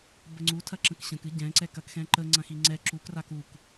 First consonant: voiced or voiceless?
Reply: voiced